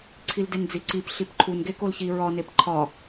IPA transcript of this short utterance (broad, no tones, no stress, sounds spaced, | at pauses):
ǀʰ i l d e n d͡z i ǀ i p ɬ i p ǃʰ u n ɡ e k o l ç i ɹ ɒ n e p ǃʰ ɒ